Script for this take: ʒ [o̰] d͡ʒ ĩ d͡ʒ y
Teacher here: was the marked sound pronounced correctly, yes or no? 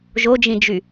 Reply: no